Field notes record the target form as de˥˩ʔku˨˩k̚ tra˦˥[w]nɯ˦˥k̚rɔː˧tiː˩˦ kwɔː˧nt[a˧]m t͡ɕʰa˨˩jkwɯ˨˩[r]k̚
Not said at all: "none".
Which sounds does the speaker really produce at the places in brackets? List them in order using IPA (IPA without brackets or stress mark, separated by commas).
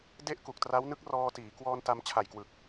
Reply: w, a˧, none